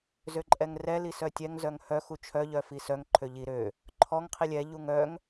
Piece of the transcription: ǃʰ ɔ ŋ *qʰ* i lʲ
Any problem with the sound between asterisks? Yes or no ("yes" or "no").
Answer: no